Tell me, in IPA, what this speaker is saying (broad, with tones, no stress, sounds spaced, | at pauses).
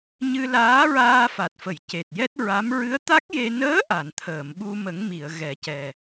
ɲ ɨ˧ l aː˧˥ ɹ aː˧ f a˨˩ t̚ f ə˨˩˨ j c e˨˩ t̚ j ɛ˦˥ t̚ ɹ a˧˥ m ɹ ɨ˧˥ ə̯ t̪ a˦˥ k̚ j e˧ n əː˧˥ ʔ a˨˩˨ n t̪ʰ əː˨˩˨ m ɓ u˧ m ə˨˩˦ ŋ m i˨˩˨ ə̯ ɣ ɛ˨˩˦ c ɛ˨˩